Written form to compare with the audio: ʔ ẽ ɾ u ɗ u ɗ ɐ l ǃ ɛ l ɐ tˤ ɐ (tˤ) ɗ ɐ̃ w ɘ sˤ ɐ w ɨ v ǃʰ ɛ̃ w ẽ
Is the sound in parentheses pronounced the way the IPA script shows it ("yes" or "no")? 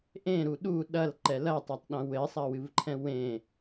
yes